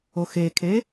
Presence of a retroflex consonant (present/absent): absent